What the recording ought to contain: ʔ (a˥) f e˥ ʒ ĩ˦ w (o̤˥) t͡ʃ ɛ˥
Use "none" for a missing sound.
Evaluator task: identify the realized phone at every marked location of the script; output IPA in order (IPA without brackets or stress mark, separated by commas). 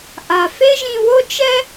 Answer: a˨, o˥